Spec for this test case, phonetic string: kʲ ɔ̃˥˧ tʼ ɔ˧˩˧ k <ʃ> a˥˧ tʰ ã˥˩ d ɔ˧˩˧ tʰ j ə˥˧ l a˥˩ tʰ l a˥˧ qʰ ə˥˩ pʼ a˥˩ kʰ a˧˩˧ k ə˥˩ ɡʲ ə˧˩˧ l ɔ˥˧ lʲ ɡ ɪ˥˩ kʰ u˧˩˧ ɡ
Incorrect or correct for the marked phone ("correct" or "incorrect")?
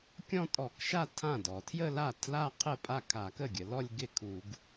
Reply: correct